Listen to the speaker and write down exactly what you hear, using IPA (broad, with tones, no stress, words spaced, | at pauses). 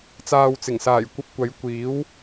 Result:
t͡saː˨wt͡sɪ˨˩ŋsaː˨˩j kʷɐ˧p̚kʷɐ˨˥jkʷiː˨˥w